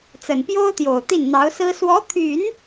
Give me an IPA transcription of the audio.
t͡s ə˨˩ n p j o˥ ʊ̯ t̪ j o˨˩ ʊ̯ t̪ i˥˩ n n̪ ɑ˧˥ ʊ̯ s ɹ̩˥ s w ɔ˧˥ t̪ʰ y˨˩˦ n

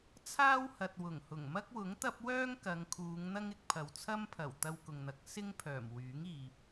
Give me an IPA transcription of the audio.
t͡sʰ aː˥ w h ɐ˨ t̚ w ʊ˨˩ ŋ h ʊ˨˩ ŋ m ɐ˥ k̚ w ʊ˨˥ ŋ t̪ ɐ˥ p̚ w œː˥ ŋ k ɐ˨˧ ŋ kʰ uː˨˧ ŋ n̪ ɐ˥ ŋ ɪ˨ k̚ pʰ ɐ˨ w t͡sʰ ɐ˥ m pʰ ɐ˨˩ w t̪ ɐ˧ w k ʊ˨ ŋ n̪ ɐ˨˥ k̚ s ɪ˥ ŋ pʰ œː˨˩ m w yː˨˥ ŋ iː˨ p̚

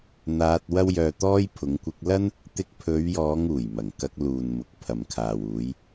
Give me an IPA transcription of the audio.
n̪ aː˧ t̚ w ɐ˥ w j œː˧ t̪ ɔː˥ j pʰ ʊ˨˧ ŋ kʷ ɪ˧ k̚ l ɐ˥ n | t̪ ɪ˧ k̚ pʰ ɵ˨˧ ɥ j ɔː˨˧ ŋ uː˨˩ j m ɐ˨˩ ŋ k ɐ˧ k̚ l uː˨ n m ʊ˨ k̚ pʰ ɐ˨ m kʰ aː˨ w uː˨˧ j

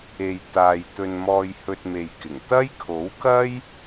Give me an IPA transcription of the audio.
e˧ j t̪ aː˨ j t̪ ɵ˧ n m ɔː˧ j h ɵ˧ t̚ m e˧ j k ɪ˨˩ ŋ t̪ ɐ˥ j kʰ o˨˥ w k ɐ˥ j

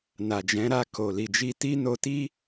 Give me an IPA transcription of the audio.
n a˨ d͡ʒ ɛ̃˨˦ ɾ a˧ k o˨ l i˨ d͡ʒ i˧ t i˦ n o˧ t i˦

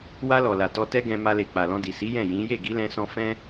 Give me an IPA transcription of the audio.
w a˧ l ɔ˨ l a˨ t ɔ˧ t ɛ˦ ɡ ɛ̃˧ m a˧ l e˨ k͡p a˨ l ɔ̃˧ d i˨ s i˨˦ j ɛ̃˦˨ j ĩ˨˦ j e˦˨ ɡ i˨˦ l ɛ̃˧ s ɔ̃˧ f ɛ̃˦

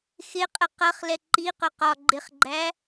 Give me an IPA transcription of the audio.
x ɪ qʼ ə q ʌ χ l ɛ ǃ i q ʊ q ɒ ɡ͡ǃ ɪ χ ɡ͡ǃ æ

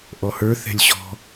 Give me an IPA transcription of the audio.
ʔ ɔ h ə˞ θ ɛ̤ lʲ ɕ ɔ̤

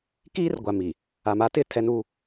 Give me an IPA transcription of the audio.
k iː˦ r ɡʷ a˨ m i˨ | a˨ m a˦ t ɪ˦˨ tʰ ɛ˦ n u˦

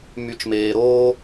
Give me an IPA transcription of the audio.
m y˨ t͡ʃ m eː˨ ɾ oː˧

